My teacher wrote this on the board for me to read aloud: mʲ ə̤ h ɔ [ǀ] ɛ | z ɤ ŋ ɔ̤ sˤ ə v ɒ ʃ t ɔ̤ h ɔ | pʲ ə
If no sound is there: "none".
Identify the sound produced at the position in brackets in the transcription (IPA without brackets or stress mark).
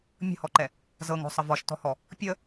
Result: ǃ